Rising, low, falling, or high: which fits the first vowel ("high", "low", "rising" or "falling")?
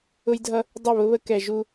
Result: high